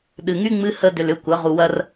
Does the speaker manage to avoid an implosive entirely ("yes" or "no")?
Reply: no